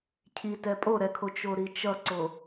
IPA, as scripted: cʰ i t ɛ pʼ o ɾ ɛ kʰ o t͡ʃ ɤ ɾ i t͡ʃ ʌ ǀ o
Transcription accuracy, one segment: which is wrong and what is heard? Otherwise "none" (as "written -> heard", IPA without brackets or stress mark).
ɤ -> o